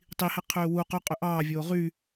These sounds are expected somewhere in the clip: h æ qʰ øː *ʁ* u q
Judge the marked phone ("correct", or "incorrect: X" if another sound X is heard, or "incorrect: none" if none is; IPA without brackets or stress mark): incorrect: w